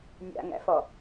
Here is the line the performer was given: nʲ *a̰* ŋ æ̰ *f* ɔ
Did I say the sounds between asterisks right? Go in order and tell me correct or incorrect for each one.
correct, correct

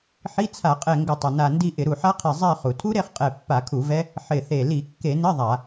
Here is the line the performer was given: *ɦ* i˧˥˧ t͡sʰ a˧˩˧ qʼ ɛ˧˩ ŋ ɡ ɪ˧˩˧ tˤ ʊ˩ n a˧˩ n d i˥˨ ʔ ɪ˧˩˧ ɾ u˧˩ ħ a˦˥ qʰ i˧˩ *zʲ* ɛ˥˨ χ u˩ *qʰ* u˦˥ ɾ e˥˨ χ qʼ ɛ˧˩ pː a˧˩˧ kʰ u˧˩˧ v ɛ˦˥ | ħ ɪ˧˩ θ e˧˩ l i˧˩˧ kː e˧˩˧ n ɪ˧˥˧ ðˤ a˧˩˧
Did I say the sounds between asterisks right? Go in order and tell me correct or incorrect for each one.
incorrect: ħ, incorrect: zˤ, incorrect: tʰ

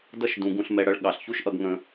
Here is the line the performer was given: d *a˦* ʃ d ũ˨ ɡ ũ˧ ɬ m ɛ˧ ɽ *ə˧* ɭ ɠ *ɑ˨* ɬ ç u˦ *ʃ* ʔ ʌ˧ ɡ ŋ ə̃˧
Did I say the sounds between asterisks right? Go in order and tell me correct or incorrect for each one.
incorrect: ʌ˦, incorrect: ʌ˧, correct, correct

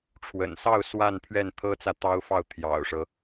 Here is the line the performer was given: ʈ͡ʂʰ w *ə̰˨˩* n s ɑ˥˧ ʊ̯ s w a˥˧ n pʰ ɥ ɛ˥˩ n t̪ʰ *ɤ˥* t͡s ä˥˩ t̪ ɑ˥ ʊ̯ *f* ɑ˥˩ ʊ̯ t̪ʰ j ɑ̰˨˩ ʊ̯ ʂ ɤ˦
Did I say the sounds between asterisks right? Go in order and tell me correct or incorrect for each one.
correct, correct, correct

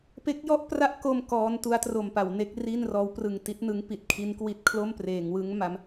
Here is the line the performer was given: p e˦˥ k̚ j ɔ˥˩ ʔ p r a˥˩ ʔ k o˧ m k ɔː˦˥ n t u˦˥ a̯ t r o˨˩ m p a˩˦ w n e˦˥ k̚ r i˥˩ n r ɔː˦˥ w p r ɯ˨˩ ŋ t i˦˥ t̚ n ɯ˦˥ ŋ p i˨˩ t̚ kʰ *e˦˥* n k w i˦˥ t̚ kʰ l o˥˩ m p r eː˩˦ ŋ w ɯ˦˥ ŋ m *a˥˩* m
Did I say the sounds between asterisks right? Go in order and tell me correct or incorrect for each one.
incorrect: i˦˥, incorrect: a˦˥

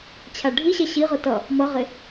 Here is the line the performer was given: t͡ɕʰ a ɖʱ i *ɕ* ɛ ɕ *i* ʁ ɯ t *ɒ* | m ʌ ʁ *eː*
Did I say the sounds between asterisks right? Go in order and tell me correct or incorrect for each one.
correct, correct, incorrect: ʌ, incorrect: e

